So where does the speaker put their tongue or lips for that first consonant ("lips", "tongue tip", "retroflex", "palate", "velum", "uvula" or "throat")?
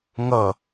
velum